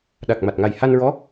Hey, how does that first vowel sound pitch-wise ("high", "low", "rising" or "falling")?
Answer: low